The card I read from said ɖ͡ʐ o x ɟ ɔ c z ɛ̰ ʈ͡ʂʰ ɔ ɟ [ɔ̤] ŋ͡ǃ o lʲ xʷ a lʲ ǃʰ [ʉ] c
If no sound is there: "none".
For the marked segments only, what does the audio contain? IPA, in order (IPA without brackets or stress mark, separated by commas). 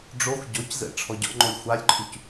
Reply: ɔ̰, ʉ